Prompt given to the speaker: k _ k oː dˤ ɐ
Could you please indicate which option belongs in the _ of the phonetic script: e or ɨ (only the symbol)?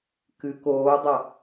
ɨ